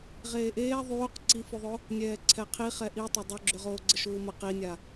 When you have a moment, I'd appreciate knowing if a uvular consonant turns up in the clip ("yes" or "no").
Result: yes